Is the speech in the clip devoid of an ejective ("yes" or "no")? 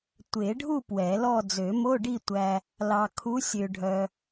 yes